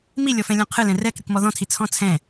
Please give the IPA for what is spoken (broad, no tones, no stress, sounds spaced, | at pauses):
m i lʲ ɔ f ɛ̃ lʲ ɔ̃ qʰ ɨ l ɛ̃ r ɛ k ɾʲ ɨ k m ɔ ð ɔ̃ tʰ i t͡sʰ ɔ̃ t͡sʰ ɛ̃